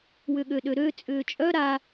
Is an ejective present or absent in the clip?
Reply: present